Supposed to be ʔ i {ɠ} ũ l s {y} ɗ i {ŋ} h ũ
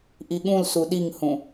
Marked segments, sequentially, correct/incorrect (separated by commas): correct, incorrect, correct